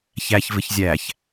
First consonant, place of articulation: palatal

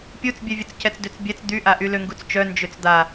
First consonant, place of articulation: labial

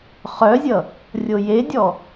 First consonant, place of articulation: uvular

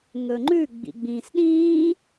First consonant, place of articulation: velar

